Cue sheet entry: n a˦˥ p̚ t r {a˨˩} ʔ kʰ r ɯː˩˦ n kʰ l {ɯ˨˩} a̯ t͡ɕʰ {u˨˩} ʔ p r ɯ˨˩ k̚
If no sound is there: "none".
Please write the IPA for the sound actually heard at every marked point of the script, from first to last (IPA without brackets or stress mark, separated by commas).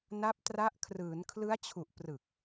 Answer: a˦˥, ɯ˦˥, u˨˩